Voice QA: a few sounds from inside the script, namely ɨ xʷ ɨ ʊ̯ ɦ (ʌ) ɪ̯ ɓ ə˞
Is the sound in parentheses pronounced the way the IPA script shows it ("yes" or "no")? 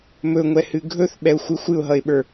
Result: yes